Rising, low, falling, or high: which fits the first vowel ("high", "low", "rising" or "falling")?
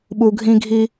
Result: low